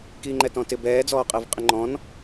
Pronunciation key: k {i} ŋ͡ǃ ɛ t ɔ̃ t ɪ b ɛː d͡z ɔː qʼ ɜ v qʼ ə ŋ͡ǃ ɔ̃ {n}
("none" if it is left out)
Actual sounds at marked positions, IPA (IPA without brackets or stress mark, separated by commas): iː, n